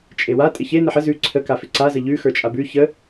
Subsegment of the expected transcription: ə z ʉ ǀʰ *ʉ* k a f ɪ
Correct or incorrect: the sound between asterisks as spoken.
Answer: incorrect: ə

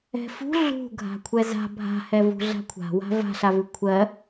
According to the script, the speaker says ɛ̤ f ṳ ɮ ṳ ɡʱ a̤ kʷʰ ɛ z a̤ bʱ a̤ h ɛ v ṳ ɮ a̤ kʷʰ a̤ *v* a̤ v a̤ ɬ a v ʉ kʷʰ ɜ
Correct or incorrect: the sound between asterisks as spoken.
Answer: incorrect: w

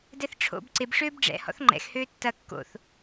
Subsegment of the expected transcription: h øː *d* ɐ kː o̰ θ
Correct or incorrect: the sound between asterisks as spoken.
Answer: incorrect: tː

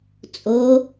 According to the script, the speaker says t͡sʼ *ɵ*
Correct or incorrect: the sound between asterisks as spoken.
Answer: incorrect: o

